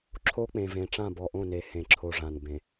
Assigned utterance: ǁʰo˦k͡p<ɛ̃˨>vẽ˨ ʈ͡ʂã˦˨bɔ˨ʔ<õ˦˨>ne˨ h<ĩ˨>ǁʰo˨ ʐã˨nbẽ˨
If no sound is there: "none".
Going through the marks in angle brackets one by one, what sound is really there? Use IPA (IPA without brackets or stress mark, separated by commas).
ẽ˨, õ˦˨, ẽ˨